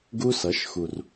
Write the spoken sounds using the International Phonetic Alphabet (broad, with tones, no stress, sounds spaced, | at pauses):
ɡ u˧ s ʌ˩˧ ʃ x u˩ r